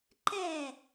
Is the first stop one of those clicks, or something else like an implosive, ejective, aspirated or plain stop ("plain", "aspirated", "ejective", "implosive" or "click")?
click